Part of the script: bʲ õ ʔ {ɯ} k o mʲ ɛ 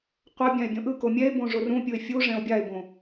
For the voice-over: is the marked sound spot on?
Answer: yes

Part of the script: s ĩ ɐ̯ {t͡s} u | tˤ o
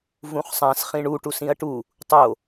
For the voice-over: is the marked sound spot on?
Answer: no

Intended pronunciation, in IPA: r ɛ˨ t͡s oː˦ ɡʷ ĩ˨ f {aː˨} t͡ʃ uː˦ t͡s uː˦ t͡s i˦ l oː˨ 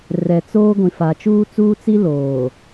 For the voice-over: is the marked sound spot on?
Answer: no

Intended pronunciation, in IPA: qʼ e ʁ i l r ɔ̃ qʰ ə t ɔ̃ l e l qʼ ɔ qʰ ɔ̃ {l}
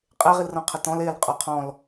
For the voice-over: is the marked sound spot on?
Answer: yes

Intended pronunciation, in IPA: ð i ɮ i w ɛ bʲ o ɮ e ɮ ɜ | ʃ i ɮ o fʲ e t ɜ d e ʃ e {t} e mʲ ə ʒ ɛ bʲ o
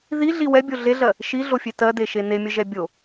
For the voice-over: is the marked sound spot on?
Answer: no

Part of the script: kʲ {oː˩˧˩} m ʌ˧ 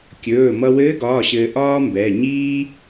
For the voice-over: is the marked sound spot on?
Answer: no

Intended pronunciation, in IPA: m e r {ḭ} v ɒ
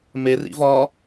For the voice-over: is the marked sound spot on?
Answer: yes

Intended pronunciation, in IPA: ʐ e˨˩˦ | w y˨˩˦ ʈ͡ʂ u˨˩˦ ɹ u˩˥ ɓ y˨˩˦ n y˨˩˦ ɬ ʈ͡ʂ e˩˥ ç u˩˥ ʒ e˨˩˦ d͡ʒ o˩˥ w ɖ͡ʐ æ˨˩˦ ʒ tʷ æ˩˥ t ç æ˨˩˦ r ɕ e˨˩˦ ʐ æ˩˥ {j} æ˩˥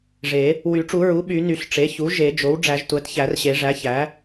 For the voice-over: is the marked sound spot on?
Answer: no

